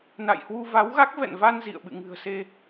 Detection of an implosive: present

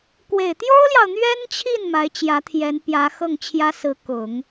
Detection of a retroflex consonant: absent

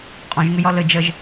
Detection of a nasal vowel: present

